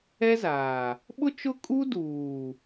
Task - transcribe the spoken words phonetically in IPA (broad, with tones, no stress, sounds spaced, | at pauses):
ɛ˦ z aː˨ | ɓ ʊ˦ t͡ʃ ʊ˦ kʼ u˦ d uː˨